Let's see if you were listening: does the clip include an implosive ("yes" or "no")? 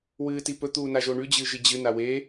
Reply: no